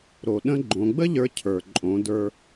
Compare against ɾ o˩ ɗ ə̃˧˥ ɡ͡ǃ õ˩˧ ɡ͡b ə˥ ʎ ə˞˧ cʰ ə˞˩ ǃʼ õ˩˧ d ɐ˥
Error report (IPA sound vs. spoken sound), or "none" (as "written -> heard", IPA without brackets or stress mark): ɐ˥ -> ə˞˥